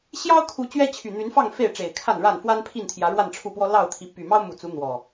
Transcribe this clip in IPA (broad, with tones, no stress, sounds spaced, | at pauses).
ɕ j ɑ˦ ʊ̯ kʰ u˨˦ t͡ɕ ɥ ɛ˦ t͡ɕʰ y˨˩ n̪ y˨˦ n f ɑ˥˨ ŋ f e˥˨ ɪ̯ ʈ͡ʂ e˨˩ ɪ̯ kʰ a˥˨ n ɻ a˥˨ n f w a˦ n pʰ i˥˨ n t̪ʰ j ä˨˦ ɻ w a˥˨ n ʈ͡ʂʰ u˥˨ p w ɔ˦ l ɑ˥˨ ʊ̯ t̪ʰ i˨˦ p y˨˩ m ɑ˦ ʊ̯ m u˨˩ t͡s u˨˦ n̪ w ɔ˨˩